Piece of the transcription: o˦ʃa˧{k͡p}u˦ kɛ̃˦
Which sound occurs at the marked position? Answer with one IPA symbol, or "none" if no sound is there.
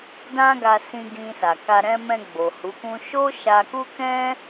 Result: k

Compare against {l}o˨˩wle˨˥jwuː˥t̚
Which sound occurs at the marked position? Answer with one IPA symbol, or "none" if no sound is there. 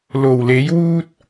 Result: l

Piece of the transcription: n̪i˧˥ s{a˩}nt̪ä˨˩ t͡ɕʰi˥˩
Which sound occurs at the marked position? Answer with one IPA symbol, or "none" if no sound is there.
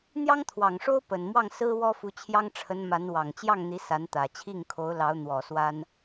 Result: a˧˥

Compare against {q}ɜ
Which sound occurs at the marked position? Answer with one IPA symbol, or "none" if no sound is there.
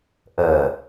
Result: ʔ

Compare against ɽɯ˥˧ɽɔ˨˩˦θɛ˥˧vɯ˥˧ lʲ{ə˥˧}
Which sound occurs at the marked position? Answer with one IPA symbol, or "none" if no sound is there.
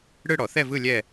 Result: ɛ˥˧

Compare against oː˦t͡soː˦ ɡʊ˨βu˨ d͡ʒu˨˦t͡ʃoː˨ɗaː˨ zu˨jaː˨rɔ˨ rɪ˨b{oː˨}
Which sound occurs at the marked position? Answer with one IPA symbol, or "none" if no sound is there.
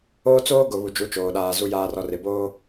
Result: oː˦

